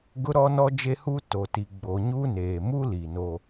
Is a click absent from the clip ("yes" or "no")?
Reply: yes